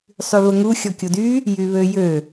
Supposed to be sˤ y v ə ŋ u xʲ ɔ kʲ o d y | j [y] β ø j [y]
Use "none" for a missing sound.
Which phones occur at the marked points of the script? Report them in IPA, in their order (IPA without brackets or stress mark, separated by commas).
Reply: y, ø